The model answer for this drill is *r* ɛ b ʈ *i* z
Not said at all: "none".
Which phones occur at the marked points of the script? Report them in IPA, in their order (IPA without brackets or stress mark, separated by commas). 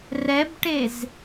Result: r, e